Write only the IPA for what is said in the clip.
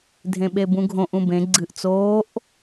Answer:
dʱ ẽ ɓ e b ũ ɡʱ õ ʔ ũ b ẽ ɡ͡ǀ ɨ ʔ t͡s oː ʔ

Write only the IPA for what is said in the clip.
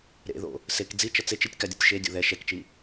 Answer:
ɾ ḛ ð o̰ | s e k d͡z i t͡ʃ ʌ t͡s e t͡ʃ i tʲ k a dʲ ʌ tʲ ʃ e dʲ o̰ ð ɛ ʃ ɛ k t͡ʃ i

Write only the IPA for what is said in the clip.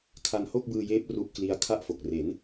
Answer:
kʰ a˧ n h o˥˩ k̚ b ɯː˧ j eː˦˥ p̚ r u˦˥ ʔ k l i˦˥ a̯ kʰ a˥˩ ʔ f o˨˩ k̚ r e˩˦ n

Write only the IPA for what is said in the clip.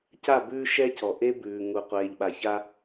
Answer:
c a˦˨ b ʉː˦ ʃ ɛ˦ c ɔ˨ ʔ e˦ b ʉː˨ ŋ u˨ qʷ eː˨ ʎ ɓ a˨ ç a˦

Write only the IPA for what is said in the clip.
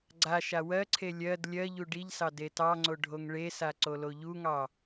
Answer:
ɡ͡ǀ a ʃ a w ɜ ǀʰ e lʲ ɜ d lʲ ɜ ʎ u ɖ i ʎ s ɑ d e t ɑ ŋ͡ǀ o ɖʱ o ŋ ɭ e s a ǀ o l o ʎ u ŋ ɑ

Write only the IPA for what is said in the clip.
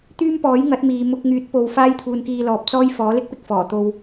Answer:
t̪ yː˥ m p ɔː˨˥ j ŋ ɐ˨˥ t̚ m iː˨ m ʊ˧ k̚ ŋ yː˨˥ t̚ p o˨ w f aː˥ j t̪ʰ uː˧ n k iː˧ l ɔː˨ p̚ t͡s ɔː˧ j f ɔː˨˥ l ɪ˥ k̚ p ɪ˨ k̚ f ɔː˨˩ t̪ o˧ w

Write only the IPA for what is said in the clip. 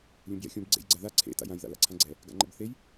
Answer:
lʲ ũ b j ɛ̰ xʲ ũ b ɡ͡ǀ ḛ j ɡ͡ǀ a ð a ǀʰ ḛ t a̰ j ã j ð a̰ l a̰ ǀʰ ã ɡ͡ǀ ɛ | ɡ a̰ ŋ͡ǃ ɛ̰ b θ e j

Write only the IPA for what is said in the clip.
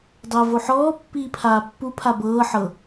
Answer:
dˤ əː v o ħ ɔː pː iː pʰ aː pː u pʰ a b ɤː ħ ɤ

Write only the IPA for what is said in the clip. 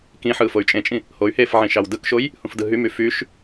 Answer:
k ĩ ħ ɯː f o y̯ t͡ʃʼ ẽ t͡ʃʼ ĩ | h o y̯ h eː f ʕ ĩ ʃ ɑ w d ɯ k ʃ o j | h ũ f d ɯ ɦ y m y f y ʃ

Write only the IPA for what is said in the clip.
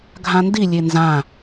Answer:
ɡʱ ã n d i lʲ e n z ã

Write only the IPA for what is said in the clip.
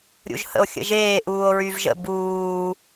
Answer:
ɾʲ ṵ ʒ h ə̰ o̯ xʲ ə̰ ʒ eː ʔ uː o̯ ɹ y v ʒ ə̰ b uː

